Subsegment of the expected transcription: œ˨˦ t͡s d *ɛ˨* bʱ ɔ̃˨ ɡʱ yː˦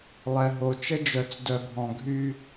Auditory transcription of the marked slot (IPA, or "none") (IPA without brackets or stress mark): œ˨